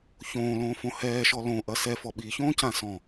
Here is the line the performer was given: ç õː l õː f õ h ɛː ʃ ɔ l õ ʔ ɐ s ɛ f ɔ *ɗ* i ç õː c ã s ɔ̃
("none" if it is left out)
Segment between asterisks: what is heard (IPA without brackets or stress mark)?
ɓ